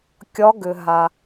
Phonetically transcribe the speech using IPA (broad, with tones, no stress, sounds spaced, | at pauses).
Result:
kʲ ɒ˨˦ ɡ ʏ˩ ɦ a˩